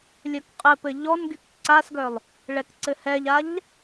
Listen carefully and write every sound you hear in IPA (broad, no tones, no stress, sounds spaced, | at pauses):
lʲ œ k qʼ ɘ p ɘ ʎ ɔ n ɡ y k ǀ a s ɡ œ lˠ | ɭ ɛ k ǀ ɘ h ɛ ʎ a ʎ